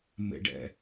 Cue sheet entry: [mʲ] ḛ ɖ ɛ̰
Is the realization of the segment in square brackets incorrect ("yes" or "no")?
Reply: yes